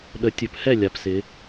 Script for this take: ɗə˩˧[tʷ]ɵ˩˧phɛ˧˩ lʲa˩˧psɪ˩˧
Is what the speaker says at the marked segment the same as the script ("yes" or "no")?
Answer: no